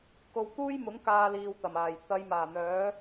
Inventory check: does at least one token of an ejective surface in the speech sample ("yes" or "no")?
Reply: no